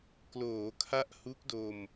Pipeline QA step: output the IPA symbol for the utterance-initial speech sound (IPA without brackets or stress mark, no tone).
k